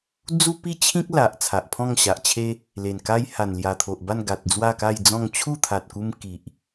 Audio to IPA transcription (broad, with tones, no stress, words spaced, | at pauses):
d͡zu˦pi˦t͡ɕʰĩ˦k̚ la˨ʔ t͡sʰa˨ʔpʰɔ̃˥˧ŋɕa˨ʔt͡ɕʰe˦ | le˨˩nka˦j ha˨˩nlja˨˩t̪ʰo˨ʔba˥˧n ɡa˨t̚d͡zwa˥˧ka˥˧jd͡zɔ̃˥˧ŋ t͡ɕʰu˥˧t̪ʰa˨t̚ku˧m ki˨ʔ